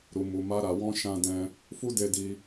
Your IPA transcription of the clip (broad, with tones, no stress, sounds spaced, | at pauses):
ɾ u˨ m u˨ m a˧ ɾ a˨ w ɔ̃˧ ʃ ã˧ d ɛ̃˧ | f u˧ d e˧ d i˧